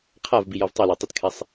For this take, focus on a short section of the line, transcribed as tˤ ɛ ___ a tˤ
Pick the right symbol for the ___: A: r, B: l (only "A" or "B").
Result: B